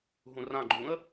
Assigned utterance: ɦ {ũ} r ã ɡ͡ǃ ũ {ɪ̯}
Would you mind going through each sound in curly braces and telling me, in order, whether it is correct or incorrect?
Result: correct, incorrect

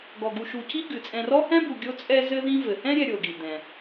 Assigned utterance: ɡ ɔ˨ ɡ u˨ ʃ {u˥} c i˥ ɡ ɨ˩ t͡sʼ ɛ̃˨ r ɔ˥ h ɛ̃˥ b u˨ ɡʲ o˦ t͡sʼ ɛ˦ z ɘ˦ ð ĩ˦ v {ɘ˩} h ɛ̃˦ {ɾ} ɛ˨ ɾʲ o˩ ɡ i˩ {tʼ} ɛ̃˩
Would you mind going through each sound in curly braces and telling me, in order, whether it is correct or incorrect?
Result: incorrect, correct, incorrect, incorrect

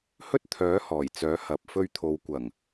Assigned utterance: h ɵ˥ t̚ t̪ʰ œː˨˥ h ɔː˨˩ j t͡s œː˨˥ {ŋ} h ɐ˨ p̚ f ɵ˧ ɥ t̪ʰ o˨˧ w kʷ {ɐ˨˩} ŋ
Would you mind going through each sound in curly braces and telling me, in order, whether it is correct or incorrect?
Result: incorrect, correct

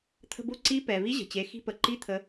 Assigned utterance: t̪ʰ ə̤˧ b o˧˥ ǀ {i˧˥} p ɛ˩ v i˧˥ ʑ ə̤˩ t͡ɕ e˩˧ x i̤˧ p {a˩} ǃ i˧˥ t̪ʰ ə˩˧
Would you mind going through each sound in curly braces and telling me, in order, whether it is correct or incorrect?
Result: correct, incorrect

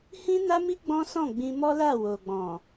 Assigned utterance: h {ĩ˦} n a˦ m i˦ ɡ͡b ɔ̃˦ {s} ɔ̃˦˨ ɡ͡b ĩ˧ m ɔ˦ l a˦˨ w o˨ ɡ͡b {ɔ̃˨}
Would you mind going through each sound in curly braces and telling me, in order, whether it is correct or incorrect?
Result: correct, correct, correct

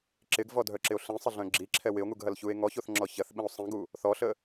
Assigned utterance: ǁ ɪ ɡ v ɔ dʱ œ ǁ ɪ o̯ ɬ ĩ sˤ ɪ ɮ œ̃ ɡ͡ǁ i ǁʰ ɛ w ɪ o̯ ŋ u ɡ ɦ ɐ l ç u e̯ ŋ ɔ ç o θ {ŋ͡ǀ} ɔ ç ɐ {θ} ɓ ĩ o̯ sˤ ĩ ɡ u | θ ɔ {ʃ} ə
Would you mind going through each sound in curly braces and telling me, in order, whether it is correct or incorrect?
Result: incorrect, correct, incorrect

